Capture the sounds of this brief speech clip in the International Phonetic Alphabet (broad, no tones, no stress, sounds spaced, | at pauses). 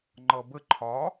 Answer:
ŋ͡ǃ ʌ b ə ǃʰ ɒ